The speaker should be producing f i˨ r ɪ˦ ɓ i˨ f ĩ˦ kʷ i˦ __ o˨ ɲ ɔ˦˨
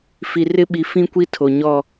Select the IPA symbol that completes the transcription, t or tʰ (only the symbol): tʰ